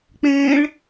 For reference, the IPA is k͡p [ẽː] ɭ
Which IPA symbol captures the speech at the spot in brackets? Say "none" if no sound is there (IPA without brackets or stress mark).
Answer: ẽː